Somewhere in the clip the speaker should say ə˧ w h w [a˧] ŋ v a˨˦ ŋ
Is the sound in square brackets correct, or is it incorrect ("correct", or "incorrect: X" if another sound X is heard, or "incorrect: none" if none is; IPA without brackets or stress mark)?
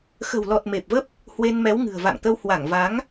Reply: incorrect: a˧˩